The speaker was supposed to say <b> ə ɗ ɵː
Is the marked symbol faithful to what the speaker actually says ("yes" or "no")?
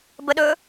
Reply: yes